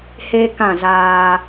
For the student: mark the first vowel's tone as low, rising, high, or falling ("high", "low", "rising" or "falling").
high